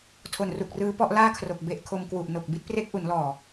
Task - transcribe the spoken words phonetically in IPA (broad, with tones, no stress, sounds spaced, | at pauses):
tʰ o˨˩ n r u˨˩ k̚ r ɯː˦˥ p ɔ˦˥ ʔ l aː˥˩ kʰ r o˨˩ k̚ b e˦˥ ʔ kʰ o˧ m k w u˨˩ ʔ n o˨˩ k̚ b i˦˥ t̚ p r e˦˥ k̚ ʔ u˩˦ n l ɔː˨˩